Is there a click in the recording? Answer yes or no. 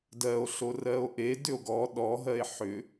no